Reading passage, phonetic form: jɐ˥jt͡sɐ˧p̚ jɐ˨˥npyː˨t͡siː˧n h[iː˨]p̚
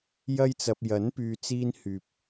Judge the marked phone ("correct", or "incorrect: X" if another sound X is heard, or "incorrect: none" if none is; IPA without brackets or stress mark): incorrect: yː˨